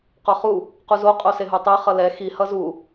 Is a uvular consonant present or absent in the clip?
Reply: present